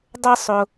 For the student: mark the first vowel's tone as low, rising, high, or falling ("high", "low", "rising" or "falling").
high